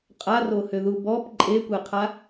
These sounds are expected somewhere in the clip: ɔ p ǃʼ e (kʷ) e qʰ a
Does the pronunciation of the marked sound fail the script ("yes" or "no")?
no